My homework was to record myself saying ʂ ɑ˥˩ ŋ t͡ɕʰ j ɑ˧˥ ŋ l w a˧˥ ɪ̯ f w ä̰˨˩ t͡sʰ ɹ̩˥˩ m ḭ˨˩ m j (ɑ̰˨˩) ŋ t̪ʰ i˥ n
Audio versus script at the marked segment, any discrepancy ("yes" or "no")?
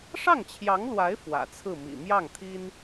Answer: yes